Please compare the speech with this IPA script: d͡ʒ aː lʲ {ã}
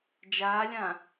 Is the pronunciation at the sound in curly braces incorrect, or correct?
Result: correct